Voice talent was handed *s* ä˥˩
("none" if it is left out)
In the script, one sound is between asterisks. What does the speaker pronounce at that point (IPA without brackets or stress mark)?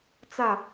t͡s